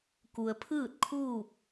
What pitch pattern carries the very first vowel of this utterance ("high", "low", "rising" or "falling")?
low